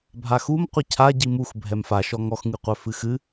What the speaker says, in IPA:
bʱaxum qʷɨcʰa ɟimux bʱɛmfa ʃɔŋɔx ŋɨqʷœfɨxɨ

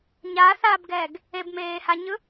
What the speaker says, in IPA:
ɲaθaːbɡɛːɡ | ebmeːhaɲɯ

